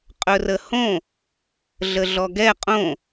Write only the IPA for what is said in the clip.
qʼɵrəhõ | ɮəɮɔɡɛ qʼõ

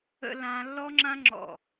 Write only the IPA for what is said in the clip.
ə̰˦˥lã˦˥ lːɔ˦˥ŋ͡ǁã˦˥ŋ͡ǁɔ̰˧˩

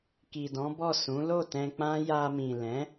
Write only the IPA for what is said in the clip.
ki˨dɔ̃˨˦bɔ˦˨ sũ˨˦lo˦˨tɛ̃˧k͡pã˦ ja˧mĩ˨ lɛ̃˨˦

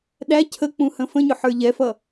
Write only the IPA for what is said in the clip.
ɗæ cʰək͡pũhə̃ fə̃ɲʊħə˞ ʎɛfʌ

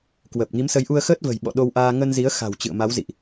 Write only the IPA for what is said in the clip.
kwəː˨˩p̚ŋi˨˦msə˨˦jʔu˧ə̯ xəː˦˥t̚və̤˨˩jɓɔ̰˧˨ ɗo˧wʔaː˧ ŋə˧nzi˨˦ə̯ xa̤˨˩w t͡ɕɨ̰˧˨ə̯ma˨˦wzḭ˧˨ʔ

